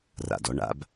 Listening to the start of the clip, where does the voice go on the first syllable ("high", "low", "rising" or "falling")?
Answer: low